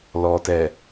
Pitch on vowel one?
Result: low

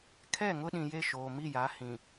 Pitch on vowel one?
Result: falling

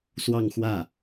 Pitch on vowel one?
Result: falling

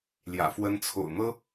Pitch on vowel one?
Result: low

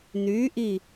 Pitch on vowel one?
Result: rising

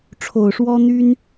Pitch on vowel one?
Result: low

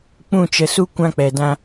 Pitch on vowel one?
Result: falling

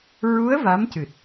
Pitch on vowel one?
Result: rising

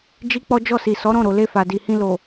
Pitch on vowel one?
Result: high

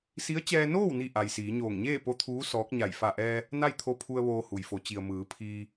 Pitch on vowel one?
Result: rising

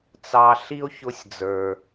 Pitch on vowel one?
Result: high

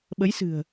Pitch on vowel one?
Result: rising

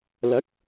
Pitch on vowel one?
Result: rising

